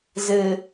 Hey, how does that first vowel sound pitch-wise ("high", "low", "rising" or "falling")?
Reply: low